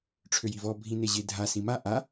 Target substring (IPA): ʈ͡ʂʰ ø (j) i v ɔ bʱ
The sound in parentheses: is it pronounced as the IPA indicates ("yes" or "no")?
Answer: yes